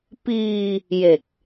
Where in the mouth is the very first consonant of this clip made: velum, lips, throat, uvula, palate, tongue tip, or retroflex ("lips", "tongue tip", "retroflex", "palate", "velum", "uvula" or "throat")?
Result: lips